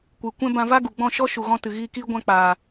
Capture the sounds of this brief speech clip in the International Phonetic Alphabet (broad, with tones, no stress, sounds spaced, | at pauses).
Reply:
kʷ ɨ˨ kʷ ɛ̃˦ b ã˧ v a˦ ɡ u˨ ɡ͡b ɔ̃˦˨ ʃ ɔ˦ ʃ u˨ ɣ ɔ̃˧ t ɨ˨ ɣ iː˧ k iː˦ ɡʷ ã˧ k͡p aː˨